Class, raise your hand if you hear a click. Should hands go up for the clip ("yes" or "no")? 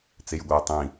no